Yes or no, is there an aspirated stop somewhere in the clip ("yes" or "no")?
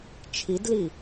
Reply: yes